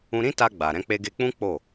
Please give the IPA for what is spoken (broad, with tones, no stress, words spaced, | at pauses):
ũ˧ɾĩ˦ta˧ ɡ͡ba˨ ɾɛ̃˧k͡pe˧ɡe˧k͡pũ˦ k͡po˦˨